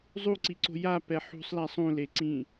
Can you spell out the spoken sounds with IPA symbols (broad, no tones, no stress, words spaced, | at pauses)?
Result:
zˤuǀiǀo̤ japɛ ħṳsˤla sˤũleǀĩ